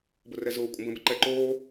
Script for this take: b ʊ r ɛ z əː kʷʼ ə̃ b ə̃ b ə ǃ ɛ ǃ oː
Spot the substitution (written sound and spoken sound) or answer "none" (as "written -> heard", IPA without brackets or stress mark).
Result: əː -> ʊː